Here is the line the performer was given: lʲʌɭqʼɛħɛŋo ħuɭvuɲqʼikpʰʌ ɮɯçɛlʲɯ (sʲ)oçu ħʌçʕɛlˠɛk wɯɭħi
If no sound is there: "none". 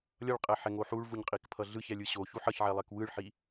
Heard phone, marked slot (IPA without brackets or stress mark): ɕ